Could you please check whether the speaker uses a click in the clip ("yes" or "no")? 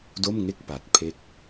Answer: no